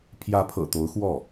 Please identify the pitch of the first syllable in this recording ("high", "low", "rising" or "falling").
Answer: rising